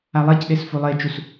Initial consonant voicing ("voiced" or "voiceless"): voiced